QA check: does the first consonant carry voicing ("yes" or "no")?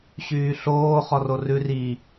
no